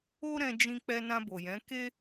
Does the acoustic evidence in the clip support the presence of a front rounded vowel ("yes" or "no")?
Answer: no